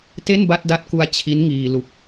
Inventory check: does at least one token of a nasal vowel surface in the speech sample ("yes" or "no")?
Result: no